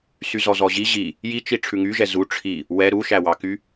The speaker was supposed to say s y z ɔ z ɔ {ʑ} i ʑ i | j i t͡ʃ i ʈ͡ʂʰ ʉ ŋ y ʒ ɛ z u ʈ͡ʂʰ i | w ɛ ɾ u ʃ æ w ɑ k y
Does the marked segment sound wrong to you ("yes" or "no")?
no